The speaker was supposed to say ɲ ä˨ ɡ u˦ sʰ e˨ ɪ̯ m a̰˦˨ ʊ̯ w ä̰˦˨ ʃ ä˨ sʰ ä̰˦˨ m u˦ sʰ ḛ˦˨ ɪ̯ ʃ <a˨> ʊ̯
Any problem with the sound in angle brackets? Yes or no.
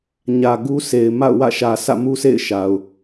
no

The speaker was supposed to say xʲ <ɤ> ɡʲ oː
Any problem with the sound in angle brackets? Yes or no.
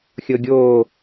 no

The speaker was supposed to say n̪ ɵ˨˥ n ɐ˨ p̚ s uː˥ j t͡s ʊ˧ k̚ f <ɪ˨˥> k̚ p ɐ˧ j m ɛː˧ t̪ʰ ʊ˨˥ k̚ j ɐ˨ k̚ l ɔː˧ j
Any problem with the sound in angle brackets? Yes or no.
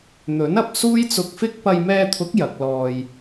yes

